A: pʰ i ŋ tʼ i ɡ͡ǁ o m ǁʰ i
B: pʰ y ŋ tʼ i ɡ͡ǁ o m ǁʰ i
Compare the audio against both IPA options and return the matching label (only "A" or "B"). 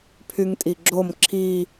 B